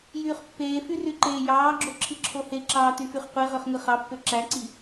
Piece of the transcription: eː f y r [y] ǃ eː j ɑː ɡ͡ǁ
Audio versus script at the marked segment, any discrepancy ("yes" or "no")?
no